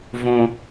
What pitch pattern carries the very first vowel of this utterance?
low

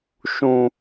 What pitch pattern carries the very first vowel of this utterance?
low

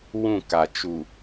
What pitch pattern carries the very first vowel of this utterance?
falling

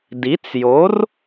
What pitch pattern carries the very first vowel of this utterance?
rising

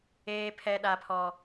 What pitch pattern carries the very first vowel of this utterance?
high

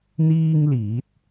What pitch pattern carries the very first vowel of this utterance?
high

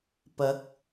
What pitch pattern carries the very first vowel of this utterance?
rising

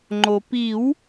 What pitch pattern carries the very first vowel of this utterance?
low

